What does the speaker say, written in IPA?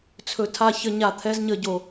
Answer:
t͡sʰɵ˧tʰa˦˨ çə˧ɲa˨ t̪ʰɛ˧zɲə˨ ɟo˨

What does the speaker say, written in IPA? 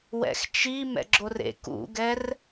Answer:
wɛ̰xt͡ʃi mɛ̰ɡ͡ǁorḛ kṵɡɛr

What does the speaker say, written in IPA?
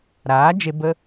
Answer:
ɾaː˨˦d͡ʒe˧ bə˧

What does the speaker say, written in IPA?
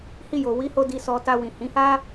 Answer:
hi˧jo˨wi˨˦ho˧ di˨sɔ˨ta˨ wĩ˨hĩ˨˦ha˦

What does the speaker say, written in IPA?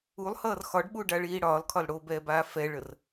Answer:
ulˠhʌːr xɒɖɓuɖaɭiː ɽɒːlkʰɒl ɽobɛːbaː fɛɭər

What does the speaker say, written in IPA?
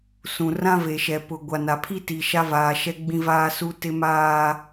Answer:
sũ˨rã˦ve˨ʃɛ˨ pʊ˨ ɡʷa˨na˨ pʰi˦ti˨ ʃa˦vaː˨ʃɛ˦ ɡ͡bĩ˦vaː˦su˦ tɪ˦maː˦

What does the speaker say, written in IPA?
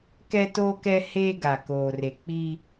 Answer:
kɛ˦toː˦kɛ˦ heː˦ɡa˨koː˨re˨ k͡pi˦

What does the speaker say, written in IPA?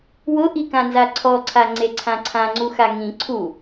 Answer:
wʊʔikãnza ǀʰɔǀʰaŋ͡ǀeǀʰã ǀʰãŋ͡ǀuxa ŋĩ ǀʰu

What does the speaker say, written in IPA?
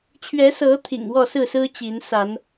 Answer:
t͡ɕʰɥɛ˨˦sɤ˨˦ t̪ʰḭ˨˩ŋwɔ˥˨sɹ̩˥˨sɹ̩˦ t͡ɕi˨˦nsa˨˦n

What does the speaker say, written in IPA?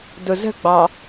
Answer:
dʊzə̤ɡ͡bɑ

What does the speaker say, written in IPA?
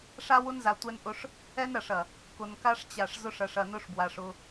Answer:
ʂa˦wʊ˦nza˨ tʷɛ˦nʔʊ˦ʂ | ɛ˦nɾɐ˨ʂɐ˨ | kʊ˨nka˦ʂt͡ɕa˨ʂzʊ˦ʂ ɐ˨ʂɐ˨nʊ˦ʂbwa˨ʂ ʊ˦

